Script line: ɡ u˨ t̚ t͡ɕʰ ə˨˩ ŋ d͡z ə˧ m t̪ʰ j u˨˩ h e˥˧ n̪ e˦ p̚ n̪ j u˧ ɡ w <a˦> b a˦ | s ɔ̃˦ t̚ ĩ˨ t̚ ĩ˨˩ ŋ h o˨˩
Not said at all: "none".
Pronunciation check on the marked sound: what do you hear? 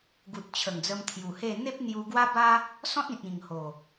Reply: a˦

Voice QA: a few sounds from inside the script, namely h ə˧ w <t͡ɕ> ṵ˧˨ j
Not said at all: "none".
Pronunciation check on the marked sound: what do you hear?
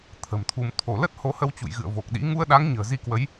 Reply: t͡ɕ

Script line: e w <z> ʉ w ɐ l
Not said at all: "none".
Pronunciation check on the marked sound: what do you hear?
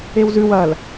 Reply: z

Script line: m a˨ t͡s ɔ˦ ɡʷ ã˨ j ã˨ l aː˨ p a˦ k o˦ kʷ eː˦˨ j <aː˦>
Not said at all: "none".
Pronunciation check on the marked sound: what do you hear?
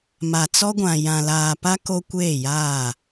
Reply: aː˦˨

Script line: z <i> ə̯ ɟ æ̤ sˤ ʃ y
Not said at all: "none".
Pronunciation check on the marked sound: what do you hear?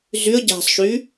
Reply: y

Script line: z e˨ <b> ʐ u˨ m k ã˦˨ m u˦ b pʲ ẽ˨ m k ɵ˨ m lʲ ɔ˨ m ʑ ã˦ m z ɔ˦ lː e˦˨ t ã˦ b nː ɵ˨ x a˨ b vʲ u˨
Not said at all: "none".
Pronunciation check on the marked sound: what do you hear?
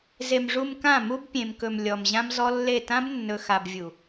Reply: m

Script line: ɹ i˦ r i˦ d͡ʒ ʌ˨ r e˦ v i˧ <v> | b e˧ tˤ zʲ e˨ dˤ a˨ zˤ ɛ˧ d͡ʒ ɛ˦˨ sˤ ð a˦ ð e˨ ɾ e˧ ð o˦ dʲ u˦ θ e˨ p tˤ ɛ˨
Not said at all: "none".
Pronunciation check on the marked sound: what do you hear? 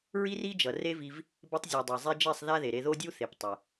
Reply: v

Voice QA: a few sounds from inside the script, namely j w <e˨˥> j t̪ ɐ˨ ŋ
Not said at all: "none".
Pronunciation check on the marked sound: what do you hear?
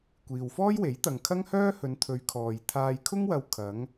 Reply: e˨˥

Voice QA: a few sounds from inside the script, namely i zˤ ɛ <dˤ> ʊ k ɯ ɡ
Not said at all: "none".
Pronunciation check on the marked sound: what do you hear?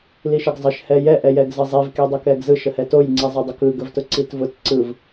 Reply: dˤ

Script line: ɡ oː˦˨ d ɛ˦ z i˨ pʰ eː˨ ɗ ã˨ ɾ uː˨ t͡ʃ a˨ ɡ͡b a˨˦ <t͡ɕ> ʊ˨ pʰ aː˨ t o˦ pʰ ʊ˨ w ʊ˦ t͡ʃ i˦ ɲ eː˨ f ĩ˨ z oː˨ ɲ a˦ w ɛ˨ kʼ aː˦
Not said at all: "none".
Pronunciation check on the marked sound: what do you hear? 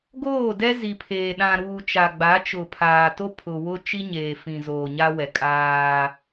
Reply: t͡ʃ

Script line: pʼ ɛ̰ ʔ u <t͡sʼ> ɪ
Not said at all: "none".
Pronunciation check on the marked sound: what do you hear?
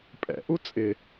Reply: t͡sʼ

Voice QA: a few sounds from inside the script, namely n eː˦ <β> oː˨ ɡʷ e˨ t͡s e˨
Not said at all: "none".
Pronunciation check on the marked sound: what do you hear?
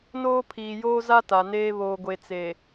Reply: β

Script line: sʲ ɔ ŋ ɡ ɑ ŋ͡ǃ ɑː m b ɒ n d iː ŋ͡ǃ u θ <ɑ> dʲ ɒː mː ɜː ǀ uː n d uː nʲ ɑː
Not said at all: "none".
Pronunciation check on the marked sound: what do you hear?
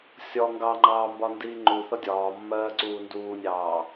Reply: ʌ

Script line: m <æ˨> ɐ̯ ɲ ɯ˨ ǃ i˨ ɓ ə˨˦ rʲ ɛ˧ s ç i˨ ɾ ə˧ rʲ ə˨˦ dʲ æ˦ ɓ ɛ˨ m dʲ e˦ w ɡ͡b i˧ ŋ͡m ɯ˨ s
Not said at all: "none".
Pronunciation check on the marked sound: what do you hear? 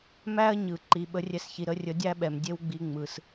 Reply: æ˦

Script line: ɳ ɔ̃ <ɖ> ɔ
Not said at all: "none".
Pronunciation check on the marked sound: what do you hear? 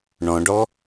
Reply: ɖ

